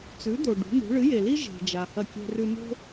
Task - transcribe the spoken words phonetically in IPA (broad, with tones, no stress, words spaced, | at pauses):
t͡sʉ˩˥d̪o˩ ɖṳ˩˥n̪ṳ˩˥ ɭɨ˩˥je˩li˥ ʒe̤˩d͡ʒa˩ hɐ˥˩kʲe̤˥rʉ˥ no̤˥